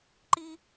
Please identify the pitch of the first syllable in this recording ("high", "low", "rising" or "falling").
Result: high